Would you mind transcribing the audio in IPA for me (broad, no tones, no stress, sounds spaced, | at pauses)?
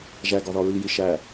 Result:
ʒ æ ɡ ɒ ð ɒ ɹ i j i ʃ æ